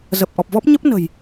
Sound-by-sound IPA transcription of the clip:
zə˨˩p̚ʔɔ˨˩p̚vɔ˦˥p̚ ɲə˦˥p̚nə̤˨˩j

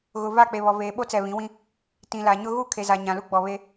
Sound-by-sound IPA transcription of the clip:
ɣʊ˨ va˦˨k͡pe˨ βɔ˨veː˨ɓo˦t͡sɛ˨ βĩ˨˦wĩ˦ | tĩ˨la˨ɲʊ˦ ɣu˦˨ kʰe˨za˨ ɲã˨lu˦ ɡ͡bɔ˨βe˦

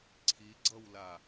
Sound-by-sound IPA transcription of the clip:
ǀʰiɡ͡ǀʌwla

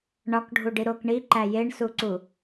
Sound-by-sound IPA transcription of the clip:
ɳɒkɖʱuɖi ɾok ɳiǃæ jeɳsuǀu

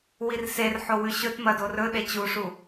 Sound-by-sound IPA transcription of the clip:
wirserħo wʉɕɵtmɐ dorɵɗe t͡ɕuʂu

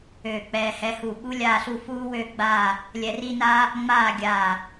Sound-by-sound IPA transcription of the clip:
øː˧˩k͡pɛː˧hɛ˧hu˧˩ ɓu˥lʲaː˥˧ɬu˥˧ fuː˥wø˥˧ɡ͡baː˥˧ | lʲɛ˧ri˥naː˥ | ŋ͡maː˥˧ɡʲaː˧˩

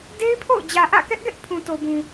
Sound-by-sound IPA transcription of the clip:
de˦ɪ̯pʰo̰˦˨ʊ̯ d͡ʑä˨ʔä̰˦˨kɛ˦ʔɡɛ˦ʔ pʰũ˨to˨bũ˨

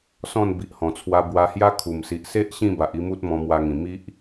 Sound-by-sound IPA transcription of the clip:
sɔ̃˥˧n bi˨ʔhɔ̃˨˩t͡sʰwa˧ bwa˧hja˦ kʰu˨˩msi˨ʔ se˦ʔ ɕĩ˥˧ba˨ʔi˥˧mu˦t̚ mɔ̃˧mwa˧ŋĩ˨˩ mi˦ʔ

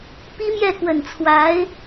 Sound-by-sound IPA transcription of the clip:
pi˥mjɛ˥˩kwə˨˩nt͡sʰwa˧˥ɪ̯

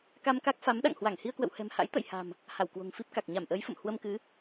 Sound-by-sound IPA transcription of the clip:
ka˧mka˦˥k̚fa˨˦m ɗa̰˧˨ŋhwa˧˩ŋ hi˧ə̯kwə̰˧˨whɛ̤˨˩mha̰˧˥j t̪ə̰˧˨jha̤˨˩m | ha˧˩wkwo̤˨˩ŋfi˦˥p̚ ka˨˩k̚ ɲa˧˩mʔəː˨˦jfə̰˧˨m hwə˧mkɨ˨˦

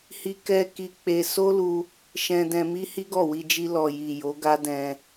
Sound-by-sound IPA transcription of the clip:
hi˦kɛ˦ ki˧k͡pe˧ so˦lu˧ | ʃɛ̃˧dɛ̃˧mi˦ hi˦ɡɔ˦˨wi˧d͡ʒi˧ lɔ˨ji˨ jo˨˦ɡa˦ dɛ̃˧

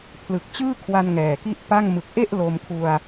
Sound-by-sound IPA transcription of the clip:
pʰlɯ˨˩k̚t͡ɕɯː˥˩kʰwa˧n ŋɛː˨˩ki˥˩ʔpa˥˩ŋ mɯ˨˩k̚ʔe˥˩ʔ lo˧mkʰu˧a̯

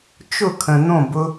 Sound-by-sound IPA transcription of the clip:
t͡ʃʊ˦˨kʰə̃˨ n̪õ˦˨bʊ˧

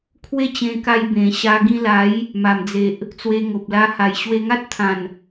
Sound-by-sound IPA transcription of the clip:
kʰwe˦t͡ɕẽ˧ka˧j bẽ˨˩ ɕa˧ ɡĩ˧la˨˦j | ma˨˩md͡ze˨ʔ | t͡swe˧ŋo˨p̚la˧ ha˨˩jɕwe˧ŋa˦t̚t̪ʰã˨˩n

